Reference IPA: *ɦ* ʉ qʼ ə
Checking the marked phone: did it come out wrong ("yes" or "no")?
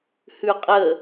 yes